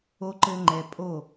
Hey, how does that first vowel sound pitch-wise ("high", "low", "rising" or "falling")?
low